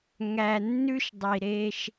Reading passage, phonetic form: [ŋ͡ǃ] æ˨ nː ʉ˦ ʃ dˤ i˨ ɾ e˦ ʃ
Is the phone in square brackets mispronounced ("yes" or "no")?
yes